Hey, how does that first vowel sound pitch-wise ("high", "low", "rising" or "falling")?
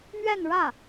falling